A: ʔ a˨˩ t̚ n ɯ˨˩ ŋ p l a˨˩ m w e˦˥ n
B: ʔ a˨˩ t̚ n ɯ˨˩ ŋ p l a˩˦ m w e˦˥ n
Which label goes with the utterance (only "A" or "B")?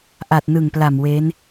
A